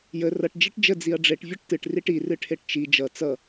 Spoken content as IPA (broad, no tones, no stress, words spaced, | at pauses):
jə rʌʈ d͡ʒiʈd͡ʒə d͡ziɐ̯ɖ͡ʐeʈ vʲʌʈtɨʈ riʈi rɨʈʰeʈt͡ʃi d͡ʒʌ t͡sʌ